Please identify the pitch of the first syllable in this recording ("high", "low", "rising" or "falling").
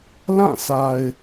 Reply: falling